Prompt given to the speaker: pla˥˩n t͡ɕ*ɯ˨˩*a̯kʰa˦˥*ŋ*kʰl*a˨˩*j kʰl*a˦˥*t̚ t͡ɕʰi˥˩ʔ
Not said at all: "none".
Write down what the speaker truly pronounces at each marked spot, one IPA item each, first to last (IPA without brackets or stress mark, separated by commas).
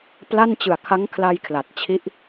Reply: ɯ˨˩, ŋ, a˧, a˨˩